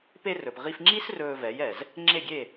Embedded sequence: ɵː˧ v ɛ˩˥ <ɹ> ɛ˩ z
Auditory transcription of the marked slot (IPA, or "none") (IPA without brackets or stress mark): j